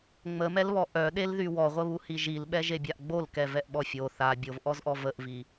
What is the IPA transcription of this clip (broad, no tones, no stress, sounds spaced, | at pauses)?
ŋ͡m ə m ɛ l β ɔ ʔ œ ɗ e l ð y w ɔ ʁʷ ə β u h i ʒ i l ɓ ɛ ʒ e bʲ a ʔ ɡ͡b o l k ɛ v ɛ ʔ ɓ ɔ fʲ o θ a bʲ o v ʔ ɔ z ʔ ɔ v ə ʔ v i